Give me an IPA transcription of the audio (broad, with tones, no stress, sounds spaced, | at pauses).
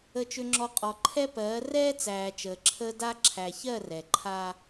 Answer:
ə˨ t͡ʃ ʏ˨ ŋ͡ǁ ɔ˨ qʼ ɔ˨ ǃʰ ɛ˦ p ɜː˨˦ r ɛː˦ t͡s æː˨ t͡ʃ əː˨ ǁʰ əː˦ d a˦ ǁʰ æ˨ ç ɜ˦˨ r ɛ˨ ǃʰ a˦